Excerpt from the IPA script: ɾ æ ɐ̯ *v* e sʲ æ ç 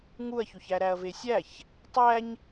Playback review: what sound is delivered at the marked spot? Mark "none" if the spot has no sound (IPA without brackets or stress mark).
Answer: v